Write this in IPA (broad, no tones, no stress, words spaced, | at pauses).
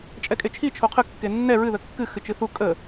t͡ʃʼɛkʼet͡ʃʰi t͡ʃʰoqʰə kːenːɛ ɹɨ ðəkːɨ xɨt͡ʃɨθu kʼə